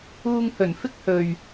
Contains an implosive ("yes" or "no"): no